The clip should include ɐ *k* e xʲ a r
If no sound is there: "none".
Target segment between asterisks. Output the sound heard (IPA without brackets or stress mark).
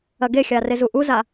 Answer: ɡ